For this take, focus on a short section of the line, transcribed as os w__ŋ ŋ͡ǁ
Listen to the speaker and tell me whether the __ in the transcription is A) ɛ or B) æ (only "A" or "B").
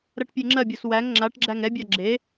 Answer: B